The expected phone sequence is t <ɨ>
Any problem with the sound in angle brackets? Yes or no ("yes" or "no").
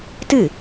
no